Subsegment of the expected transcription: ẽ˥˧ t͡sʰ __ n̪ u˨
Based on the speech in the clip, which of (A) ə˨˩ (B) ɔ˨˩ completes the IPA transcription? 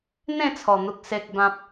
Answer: B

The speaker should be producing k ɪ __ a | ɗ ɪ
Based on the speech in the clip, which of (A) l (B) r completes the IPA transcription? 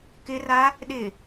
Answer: B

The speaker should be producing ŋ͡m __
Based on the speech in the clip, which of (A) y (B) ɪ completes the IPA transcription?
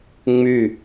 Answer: A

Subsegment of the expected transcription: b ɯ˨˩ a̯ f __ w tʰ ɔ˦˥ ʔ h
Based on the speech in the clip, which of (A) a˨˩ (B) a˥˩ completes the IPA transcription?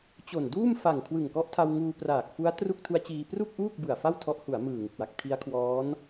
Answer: B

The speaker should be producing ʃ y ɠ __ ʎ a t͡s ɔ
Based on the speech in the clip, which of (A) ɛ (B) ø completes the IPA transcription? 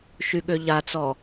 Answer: B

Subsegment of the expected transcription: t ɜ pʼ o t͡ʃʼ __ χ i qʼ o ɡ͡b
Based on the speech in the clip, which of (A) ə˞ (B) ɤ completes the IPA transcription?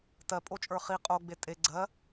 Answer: A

